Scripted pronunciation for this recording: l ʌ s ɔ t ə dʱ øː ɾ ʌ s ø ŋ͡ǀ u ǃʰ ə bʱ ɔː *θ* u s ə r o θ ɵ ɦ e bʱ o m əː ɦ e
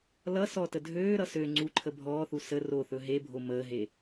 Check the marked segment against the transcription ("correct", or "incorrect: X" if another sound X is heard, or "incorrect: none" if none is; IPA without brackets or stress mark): correct